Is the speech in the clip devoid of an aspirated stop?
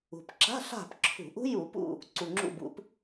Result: no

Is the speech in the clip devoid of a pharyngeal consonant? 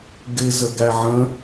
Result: no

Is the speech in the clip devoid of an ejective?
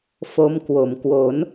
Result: yes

